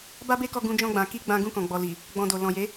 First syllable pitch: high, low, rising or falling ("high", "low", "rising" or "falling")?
high